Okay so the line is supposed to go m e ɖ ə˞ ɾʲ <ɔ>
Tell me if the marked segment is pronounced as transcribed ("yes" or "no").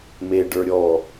yes